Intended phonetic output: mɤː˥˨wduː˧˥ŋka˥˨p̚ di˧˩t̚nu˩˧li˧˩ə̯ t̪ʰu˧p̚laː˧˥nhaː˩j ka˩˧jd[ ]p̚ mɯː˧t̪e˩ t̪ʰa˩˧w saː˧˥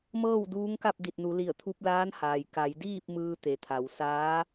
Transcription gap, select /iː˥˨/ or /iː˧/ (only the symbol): iː˥˨